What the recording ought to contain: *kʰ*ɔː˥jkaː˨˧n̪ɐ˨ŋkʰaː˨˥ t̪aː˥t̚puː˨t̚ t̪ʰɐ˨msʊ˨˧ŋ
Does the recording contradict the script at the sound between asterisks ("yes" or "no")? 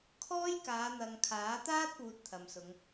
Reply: no